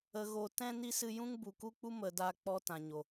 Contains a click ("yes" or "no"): no